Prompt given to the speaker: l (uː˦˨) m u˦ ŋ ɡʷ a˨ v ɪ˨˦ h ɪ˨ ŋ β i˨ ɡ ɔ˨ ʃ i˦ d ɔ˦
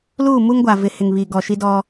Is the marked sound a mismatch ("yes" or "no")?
no